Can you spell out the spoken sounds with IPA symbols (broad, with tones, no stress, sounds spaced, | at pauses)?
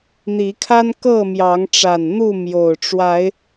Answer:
n̪ i˨˦ kʰ a˦ n k ɤ˥˨ m j ɑ˨˦ ŋ ʈ͡ʂ a˨˩ n n̪ u˥˨ m j o˨˩ ʊ̯ ʈ͡ʂ w a˨˦ ɪ̯